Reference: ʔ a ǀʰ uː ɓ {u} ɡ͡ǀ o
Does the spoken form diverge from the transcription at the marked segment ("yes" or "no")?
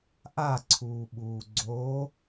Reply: yes